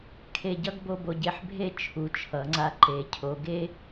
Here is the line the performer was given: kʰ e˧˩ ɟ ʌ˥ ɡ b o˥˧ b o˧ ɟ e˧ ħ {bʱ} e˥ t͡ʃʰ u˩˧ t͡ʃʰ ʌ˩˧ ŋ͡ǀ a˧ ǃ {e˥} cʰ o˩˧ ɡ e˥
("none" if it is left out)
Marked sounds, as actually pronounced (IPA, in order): bʱ, e˩˧

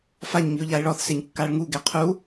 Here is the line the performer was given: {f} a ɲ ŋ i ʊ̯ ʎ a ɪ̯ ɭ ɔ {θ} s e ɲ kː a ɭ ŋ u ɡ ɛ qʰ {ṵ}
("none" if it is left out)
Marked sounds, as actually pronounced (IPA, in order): f, θ, u

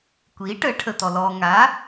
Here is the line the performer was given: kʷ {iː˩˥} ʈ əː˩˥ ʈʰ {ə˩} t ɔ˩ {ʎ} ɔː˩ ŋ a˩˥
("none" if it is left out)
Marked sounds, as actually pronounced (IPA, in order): iː˩˥, ə˩, l

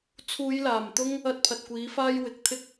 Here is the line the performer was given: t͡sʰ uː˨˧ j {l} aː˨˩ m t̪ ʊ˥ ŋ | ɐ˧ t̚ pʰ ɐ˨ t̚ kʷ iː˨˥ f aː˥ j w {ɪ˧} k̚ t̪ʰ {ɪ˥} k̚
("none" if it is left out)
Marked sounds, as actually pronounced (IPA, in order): l, ɪ˨˥, ɪ˥

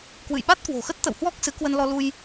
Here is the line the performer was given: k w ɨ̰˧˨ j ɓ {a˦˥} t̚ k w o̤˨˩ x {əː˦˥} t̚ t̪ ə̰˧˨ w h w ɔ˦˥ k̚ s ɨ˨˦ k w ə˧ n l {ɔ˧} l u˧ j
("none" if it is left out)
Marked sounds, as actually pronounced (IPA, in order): a˦˥, ə˦˥, ɔ˧

